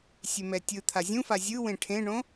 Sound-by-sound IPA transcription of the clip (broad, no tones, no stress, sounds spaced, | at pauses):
sʲ e m ɛ tʲ ɯ t̪ʰ a zʲ ũ f a zʲ ɯ w ẽ ʈʰ ẽ ɳ õ